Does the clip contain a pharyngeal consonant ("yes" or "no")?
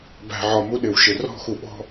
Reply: yes